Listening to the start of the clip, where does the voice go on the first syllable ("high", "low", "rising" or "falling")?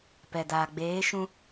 low